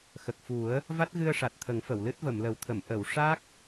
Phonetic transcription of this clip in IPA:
x ə˨˩ k̚ f u˨˩˦ ə̯ | v a˦˥ t̚ ɣ ɨ˧ ə̯ ʂ a˨˩ t̚ t̪ʰ ə˨˩˦ ŋ f ə˨˩˨ w l ɨ˦˥ t̚ v ə˨˩˨ m l ə˨˩˦ w t̪ʰ ə˨˩˨ m ʔ ə˨˩˨ w ʂ a˦˥ k̚

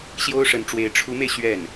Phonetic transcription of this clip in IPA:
ɕ j o˥ ʊ̯ ʂ ə˧˥ n ʈ͡ʂ w e˧˥ ɪ̯ ʈ͡ʂʰ u˧˥ m e˧ ɪ̯ ɕ ɥ ɛ˥˩ n

